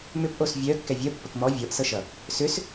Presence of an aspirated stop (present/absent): absent